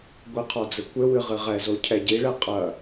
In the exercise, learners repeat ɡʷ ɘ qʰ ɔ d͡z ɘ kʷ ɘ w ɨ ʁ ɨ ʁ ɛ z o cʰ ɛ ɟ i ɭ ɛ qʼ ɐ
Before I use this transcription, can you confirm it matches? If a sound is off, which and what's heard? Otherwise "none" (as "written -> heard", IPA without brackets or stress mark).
none